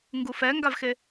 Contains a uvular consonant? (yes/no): no